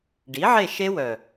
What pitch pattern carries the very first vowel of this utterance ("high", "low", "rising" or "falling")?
rising